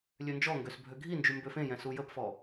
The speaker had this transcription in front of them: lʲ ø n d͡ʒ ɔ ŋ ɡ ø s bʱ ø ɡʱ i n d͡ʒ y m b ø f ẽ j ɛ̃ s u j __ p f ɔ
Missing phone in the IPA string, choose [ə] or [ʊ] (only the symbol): ə